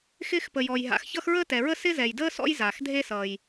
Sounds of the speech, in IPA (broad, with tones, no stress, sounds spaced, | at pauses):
x ɪː˥ x p ə˩ j ɔ˩ j ɦ a̰˩ x ç ʌ˥ x ɹ əː˥ t ɛ˩ ɹ ə˥ s ɪ˥ z ɛ˩ j d əː˥ s ɔ̰˥ j z aː˩ x dʱ e˥ s ʌː˩ j